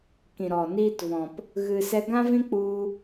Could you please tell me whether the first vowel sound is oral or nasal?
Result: nasal